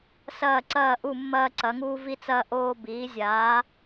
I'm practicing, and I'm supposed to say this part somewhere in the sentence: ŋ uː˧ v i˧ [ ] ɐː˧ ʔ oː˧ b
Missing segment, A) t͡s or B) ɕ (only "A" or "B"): A